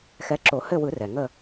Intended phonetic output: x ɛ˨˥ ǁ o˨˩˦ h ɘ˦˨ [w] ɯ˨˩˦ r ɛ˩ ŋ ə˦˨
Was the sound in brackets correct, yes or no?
yes